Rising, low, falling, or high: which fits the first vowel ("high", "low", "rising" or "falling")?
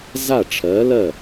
falling